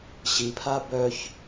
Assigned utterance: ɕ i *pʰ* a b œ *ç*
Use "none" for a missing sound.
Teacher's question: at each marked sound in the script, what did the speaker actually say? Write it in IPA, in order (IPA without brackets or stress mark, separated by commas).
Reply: pʰ, ç